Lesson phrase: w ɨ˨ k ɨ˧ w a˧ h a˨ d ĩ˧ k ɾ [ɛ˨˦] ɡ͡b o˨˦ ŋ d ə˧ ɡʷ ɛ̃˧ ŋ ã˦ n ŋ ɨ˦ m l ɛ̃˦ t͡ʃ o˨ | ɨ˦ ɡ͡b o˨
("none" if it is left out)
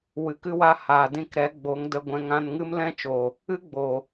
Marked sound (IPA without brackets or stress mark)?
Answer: ɛ˨˦